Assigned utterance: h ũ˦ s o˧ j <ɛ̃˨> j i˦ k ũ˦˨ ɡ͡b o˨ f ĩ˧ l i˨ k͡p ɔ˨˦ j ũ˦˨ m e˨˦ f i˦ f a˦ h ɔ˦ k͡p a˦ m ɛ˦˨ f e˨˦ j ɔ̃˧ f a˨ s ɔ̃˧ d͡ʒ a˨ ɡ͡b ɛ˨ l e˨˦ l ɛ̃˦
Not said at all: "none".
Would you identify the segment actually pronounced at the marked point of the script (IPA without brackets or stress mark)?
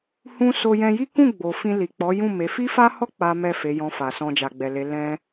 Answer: ɛ̃˧